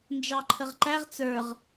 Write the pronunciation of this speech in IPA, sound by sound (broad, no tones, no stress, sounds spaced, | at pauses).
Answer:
n d͡ʒ ɑ ǃʰ ə ʁ ǃ æ ʁ t͡s ə˞ ʁ